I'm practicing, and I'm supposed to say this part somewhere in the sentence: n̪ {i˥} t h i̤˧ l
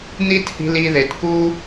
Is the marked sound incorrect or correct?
correct